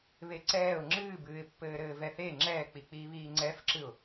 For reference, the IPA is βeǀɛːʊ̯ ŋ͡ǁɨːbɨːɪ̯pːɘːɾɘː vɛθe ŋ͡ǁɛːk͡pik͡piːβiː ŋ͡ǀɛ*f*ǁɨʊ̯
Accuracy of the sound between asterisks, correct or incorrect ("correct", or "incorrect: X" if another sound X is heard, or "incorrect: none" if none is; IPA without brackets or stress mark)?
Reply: correct